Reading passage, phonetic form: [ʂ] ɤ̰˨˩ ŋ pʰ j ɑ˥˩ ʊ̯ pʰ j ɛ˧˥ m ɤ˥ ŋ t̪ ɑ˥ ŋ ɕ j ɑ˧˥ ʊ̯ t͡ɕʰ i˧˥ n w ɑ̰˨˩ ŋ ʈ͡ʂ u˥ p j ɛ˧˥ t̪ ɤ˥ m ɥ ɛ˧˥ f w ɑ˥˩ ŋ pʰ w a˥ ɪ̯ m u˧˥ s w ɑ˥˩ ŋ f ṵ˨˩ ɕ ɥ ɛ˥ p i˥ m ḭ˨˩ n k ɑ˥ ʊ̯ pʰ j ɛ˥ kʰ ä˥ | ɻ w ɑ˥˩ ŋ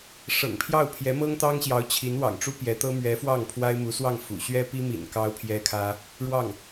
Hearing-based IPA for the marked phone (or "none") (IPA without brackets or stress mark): ʂ